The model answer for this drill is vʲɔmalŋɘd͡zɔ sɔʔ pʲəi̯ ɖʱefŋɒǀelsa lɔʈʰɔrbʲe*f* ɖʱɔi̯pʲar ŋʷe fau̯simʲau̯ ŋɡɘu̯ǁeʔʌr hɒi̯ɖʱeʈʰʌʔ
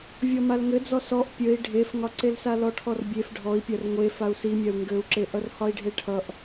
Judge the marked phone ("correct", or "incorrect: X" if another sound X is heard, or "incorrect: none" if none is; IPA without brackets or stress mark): correct